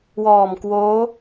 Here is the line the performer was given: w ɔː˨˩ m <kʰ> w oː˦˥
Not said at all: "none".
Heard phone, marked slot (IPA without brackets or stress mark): k